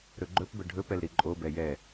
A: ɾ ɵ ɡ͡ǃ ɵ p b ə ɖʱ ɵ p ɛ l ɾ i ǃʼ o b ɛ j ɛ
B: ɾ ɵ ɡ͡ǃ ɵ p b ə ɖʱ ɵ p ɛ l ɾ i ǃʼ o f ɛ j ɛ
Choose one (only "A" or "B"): A